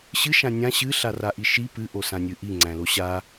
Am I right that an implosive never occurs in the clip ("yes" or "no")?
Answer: yes